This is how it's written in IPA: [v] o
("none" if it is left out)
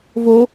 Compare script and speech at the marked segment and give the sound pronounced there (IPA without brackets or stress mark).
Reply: v